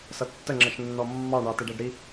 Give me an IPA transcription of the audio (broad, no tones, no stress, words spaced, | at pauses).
sʌtːəŋ͡ǁʌʃ nːɔmːɑɳɑ tɪɖæɖɾi